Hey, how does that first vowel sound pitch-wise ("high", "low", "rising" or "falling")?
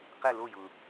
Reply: falling